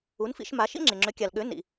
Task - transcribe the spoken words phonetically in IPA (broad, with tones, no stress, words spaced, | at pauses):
u˩˥nfḭ˧ʃma˩˥ʃḭ˥ ŋ͡ǁe˩ŋ͡ǁø˩˥kʲa˩lɠø˩˥ nḭ˩